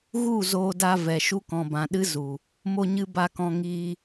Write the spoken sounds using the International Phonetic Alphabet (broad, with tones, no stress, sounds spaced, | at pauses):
ɣ u˦˨ z oː˧ d a˧ v ɛ˨ ʃ u˧ k ɔ̃˨ b ã˨ ɗ ɨ˦ z u˨ | m o˧ ɲ ɨ˧ b a˧ k ɔ̃˧ ŋ iː˧